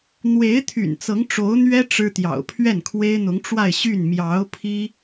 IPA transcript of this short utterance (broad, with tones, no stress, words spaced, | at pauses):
n̪we˧˥ɪ̯t̪ʰy̰˨˩n t͡sɤ˧˥ŋʈ͡ʂo˧˥ʊ̯n̪ɥɛ˥ ʈ͡ʂɻ̩˥t̪jɑ̰˨˩ʊ̯ pʰɥɛ˥˩nkʰwe˥ɪ̯n̪ʊ˧˥ŋ ʈ͡ʂwa˥˧ɪ̯ɕy˥˩n mjɑ˧˥ʊ̯ pʰi˥